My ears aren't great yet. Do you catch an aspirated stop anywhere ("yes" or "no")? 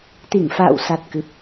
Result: no